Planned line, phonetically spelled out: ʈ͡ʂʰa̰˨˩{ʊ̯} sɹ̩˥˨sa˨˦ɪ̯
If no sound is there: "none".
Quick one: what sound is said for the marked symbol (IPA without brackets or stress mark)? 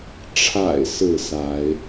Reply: ɪ̯